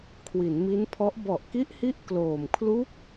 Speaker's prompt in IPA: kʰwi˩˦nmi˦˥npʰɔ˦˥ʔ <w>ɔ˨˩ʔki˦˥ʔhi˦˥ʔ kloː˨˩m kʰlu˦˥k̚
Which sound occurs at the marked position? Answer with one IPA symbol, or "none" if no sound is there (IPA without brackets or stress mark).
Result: b